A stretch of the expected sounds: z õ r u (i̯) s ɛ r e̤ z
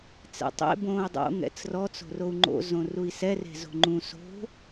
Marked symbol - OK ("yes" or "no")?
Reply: yes